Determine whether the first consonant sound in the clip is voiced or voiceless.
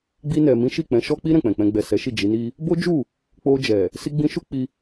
voiced